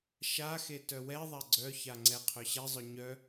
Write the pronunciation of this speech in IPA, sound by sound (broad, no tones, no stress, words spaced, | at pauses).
ʃaxe tœwɛðˤa ɡ͡ǀœça ŋ͡ǀɛqʰœɕɛzˤœ ɲœ